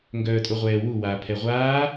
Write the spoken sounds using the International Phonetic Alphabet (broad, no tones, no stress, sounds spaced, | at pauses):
ŋ ɡ œː tʼ o ʁʷ ɛː w u w aː pʰ ɛ ʁʷ aː